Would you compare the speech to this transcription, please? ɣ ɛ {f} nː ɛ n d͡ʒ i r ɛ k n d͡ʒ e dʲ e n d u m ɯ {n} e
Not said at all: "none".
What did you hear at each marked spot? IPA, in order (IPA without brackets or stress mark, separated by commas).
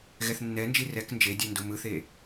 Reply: θ, θ